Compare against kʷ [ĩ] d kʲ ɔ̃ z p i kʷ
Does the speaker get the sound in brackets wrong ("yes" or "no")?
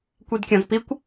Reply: yes